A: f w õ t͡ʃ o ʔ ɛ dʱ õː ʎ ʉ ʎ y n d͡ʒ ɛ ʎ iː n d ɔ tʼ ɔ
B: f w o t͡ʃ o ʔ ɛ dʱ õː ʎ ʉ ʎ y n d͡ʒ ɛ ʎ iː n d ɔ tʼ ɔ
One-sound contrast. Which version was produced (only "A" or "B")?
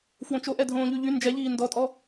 A